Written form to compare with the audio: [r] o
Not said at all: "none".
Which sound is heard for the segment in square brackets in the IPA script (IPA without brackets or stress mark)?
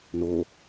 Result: n